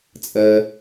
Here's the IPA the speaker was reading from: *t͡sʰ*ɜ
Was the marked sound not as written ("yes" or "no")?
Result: yes